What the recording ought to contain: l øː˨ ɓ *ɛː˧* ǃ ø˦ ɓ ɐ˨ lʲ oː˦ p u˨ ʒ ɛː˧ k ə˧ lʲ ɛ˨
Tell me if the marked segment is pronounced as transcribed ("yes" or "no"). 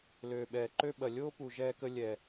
no